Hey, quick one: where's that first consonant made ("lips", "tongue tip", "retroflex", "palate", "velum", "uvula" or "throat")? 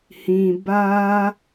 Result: throat